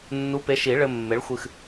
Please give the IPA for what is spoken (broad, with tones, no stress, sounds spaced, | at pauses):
nː u˨˥ p e˨˥ ʃ i˨˩˦ ɭ ɘ˧ mː e˨˥ ɭ xʷ ɨ˧ x